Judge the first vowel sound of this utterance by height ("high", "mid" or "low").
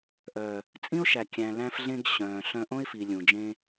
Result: mid